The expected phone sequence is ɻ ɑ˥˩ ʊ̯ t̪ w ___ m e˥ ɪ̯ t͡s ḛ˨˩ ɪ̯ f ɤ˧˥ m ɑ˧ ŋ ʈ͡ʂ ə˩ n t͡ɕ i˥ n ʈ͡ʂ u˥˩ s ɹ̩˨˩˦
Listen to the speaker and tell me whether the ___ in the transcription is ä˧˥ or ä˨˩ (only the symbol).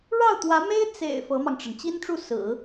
ä˧˥